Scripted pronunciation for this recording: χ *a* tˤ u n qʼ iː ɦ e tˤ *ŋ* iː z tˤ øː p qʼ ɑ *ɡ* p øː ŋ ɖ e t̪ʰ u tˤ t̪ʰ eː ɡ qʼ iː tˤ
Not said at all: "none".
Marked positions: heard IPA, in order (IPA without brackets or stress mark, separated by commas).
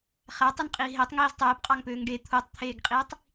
æ, ŋ, ŋ